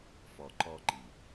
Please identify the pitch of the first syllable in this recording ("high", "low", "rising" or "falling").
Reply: low